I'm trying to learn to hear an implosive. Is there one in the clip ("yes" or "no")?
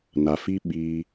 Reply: yes